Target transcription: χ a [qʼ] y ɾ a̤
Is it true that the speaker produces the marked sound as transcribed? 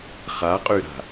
yes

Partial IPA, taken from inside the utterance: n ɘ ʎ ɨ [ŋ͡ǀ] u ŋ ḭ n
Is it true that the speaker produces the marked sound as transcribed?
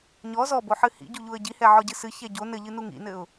no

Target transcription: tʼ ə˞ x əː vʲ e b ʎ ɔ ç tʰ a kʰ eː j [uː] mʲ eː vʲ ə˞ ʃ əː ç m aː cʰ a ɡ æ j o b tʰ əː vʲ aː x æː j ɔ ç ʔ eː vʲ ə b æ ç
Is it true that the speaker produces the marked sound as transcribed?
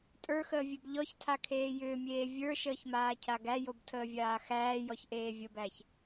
no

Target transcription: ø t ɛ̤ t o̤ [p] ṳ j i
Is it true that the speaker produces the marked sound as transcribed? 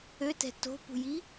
yes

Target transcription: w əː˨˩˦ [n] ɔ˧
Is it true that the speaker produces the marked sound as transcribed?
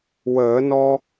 yes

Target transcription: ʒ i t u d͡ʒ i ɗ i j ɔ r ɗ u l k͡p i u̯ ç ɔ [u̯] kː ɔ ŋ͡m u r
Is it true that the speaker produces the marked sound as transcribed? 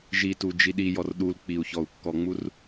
yes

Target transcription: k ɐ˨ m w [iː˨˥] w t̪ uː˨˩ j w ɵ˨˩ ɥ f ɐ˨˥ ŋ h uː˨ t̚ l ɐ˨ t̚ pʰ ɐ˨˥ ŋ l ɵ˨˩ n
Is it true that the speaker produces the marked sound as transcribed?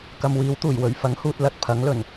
yes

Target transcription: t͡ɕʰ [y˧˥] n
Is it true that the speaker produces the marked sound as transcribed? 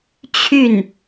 no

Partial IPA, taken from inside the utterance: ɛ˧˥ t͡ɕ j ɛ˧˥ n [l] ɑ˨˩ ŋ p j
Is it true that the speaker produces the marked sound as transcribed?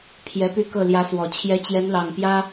yes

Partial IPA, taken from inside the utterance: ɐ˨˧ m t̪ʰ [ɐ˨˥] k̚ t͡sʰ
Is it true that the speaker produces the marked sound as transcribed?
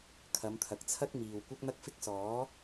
no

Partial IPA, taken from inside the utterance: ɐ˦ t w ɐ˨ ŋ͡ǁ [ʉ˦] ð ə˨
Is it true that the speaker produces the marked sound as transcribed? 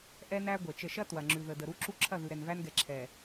no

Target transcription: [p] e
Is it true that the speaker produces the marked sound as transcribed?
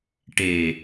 no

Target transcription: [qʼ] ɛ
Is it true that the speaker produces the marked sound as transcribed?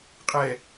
yes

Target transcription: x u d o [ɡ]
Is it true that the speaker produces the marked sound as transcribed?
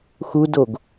yes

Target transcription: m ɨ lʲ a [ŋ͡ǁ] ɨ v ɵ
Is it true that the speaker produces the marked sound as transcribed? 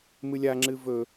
yes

